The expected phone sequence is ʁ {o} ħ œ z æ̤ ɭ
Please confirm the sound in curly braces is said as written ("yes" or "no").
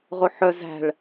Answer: yes